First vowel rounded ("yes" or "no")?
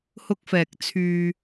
yes